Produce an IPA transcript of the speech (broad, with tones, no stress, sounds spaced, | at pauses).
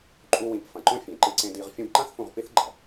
ǃʼ u˧ w ĩ˨˦ p f ɐ̃˨ ǃ õ˦ fʲ ẽ˨ ǃ ɨ˧ ǀ ẽ˧ d i˧ ʁ fʲ õ˧ b ǃ ã˦ θ f ũ˧ ʁ p i˦ θ ɡ͡ǃ ɐ˨